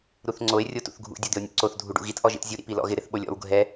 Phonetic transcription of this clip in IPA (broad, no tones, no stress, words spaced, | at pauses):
ɾuθŋ͡ǀoe̯ rʲotṵθɡʱṵ dʲod̪ɪo̯nʲṵǀoθ dʱuɖṵɣit ʔɔʒḭtzʲu ɾḭpilɔ̰ɣɪ ɾɪθɓolʲɔ̰w ɡʱɛ